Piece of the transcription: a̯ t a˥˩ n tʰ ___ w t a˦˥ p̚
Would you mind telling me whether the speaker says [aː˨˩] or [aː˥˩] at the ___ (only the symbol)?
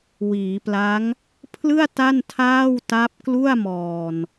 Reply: aː˥˩